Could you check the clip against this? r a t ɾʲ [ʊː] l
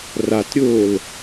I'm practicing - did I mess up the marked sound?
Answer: no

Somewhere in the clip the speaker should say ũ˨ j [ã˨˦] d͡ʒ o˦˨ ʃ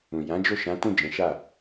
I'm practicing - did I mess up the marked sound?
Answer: no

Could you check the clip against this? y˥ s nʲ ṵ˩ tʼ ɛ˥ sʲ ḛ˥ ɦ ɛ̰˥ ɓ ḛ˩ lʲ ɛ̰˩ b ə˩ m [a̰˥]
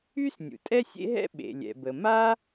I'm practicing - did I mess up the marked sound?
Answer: yes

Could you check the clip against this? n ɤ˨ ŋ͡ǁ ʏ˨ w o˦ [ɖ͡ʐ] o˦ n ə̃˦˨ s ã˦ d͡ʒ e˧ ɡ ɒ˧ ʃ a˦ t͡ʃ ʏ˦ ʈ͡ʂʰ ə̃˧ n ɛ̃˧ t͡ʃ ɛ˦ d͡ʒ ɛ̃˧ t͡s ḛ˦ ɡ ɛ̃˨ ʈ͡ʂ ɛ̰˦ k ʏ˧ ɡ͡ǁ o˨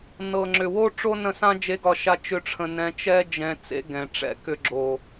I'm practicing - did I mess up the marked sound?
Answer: yes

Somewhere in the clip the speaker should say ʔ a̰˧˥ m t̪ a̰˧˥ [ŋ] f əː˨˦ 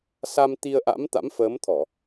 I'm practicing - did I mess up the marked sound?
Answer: yes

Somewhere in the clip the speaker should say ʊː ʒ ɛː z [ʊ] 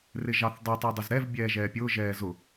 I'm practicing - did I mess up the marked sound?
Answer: no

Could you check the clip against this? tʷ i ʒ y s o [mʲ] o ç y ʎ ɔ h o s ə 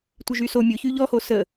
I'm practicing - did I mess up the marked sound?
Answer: no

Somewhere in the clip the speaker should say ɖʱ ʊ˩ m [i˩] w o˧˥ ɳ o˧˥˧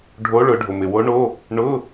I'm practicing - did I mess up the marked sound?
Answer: yes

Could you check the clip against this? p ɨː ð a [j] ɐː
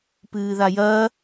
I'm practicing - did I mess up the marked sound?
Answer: no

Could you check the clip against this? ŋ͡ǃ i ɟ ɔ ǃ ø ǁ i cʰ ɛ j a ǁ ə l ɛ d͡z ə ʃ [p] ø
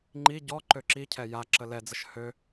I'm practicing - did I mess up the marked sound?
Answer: yes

